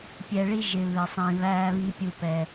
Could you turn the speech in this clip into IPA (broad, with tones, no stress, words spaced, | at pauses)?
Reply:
pʲɛ˨ɭi˧ ʒɪ˨βɪ˨sˤĩ˨ βæː˧βi˧pʲu˧pɛ˧